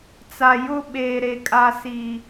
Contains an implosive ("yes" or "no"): yes